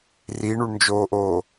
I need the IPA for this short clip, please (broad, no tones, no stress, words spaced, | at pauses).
riɳuɳnd͡ʒoːʔoː